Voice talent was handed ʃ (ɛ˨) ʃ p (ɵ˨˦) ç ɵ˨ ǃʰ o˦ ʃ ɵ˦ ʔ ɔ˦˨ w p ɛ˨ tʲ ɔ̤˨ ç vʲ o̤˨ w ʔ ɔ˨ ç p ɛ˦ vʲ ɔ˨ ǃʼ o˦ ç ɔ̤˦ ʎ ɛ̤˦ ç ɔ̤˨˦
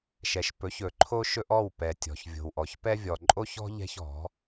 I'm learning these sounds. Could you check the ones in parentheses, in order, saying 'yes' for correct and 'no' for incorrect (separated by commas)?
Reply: yes, yes